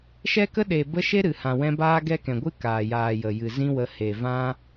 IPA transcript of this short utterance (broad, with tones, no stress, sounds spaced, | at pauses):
ʃ ɛ˦ k ə˦ ɗ e˨ b ə˧ ʃ e˦ ɾ ɨ˨ h ã˨ w ɛ̃˧ b aː˦ ɡ ɛ˦ k ɛ̃˨ ɡʷ ɨ˦ k aː˨ j aː˨ j ə˨ j ɨ˨ z ĩ˦ w ə˧ h e˨ v ã˦